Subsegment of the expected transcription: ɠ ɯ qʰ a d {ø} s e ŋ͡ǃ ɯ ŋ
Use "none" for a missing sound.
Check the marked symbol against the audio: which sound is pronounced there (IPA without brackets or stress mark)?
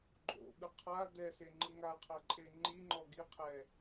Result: ɛ